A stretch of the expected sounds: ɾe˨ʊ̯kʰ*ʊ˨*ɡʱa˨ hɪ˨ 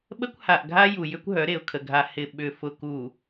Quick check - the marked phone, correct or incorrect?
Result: incorrect